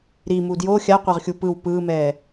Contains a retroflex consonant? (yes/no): no